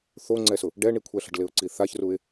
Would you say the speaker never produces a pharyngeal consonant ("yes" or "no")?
yes